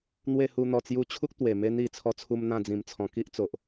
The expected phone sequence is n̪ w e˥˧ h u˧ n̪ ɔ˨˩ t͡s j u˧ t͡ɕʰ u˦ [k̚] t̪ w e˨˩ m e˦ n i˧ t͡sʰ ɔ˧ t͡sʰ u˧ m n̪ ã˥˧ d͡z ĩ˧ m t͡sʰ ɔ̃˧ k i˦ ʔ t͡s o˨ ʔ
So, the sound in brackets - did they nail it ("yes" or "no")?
yes